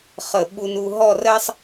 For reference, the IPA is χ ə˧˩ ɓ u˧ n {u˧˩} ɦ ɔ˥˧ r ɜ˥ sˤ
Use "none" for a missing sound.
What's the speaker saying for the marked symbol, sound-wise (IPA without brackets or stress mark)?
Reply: u˧